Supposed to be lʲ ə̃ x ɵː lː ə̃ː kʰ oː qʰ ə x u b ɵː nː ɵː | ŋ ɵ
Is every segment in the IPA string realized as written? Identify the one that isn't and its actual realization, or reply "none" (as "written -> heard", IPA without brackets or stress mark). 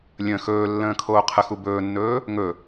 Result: none